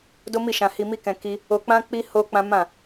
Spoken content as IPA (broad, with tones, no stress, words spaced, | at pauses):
do˦mi˦˨ʃã˧ hi˧mi˦kɛ̃˧ ki˦ | o˧k͡pã˦k͡pi˦ ho˦k͡pã˦ mã˦˨